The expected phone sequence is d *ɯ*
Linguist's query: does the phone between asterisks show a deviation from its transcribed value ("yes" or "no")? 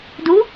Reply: yes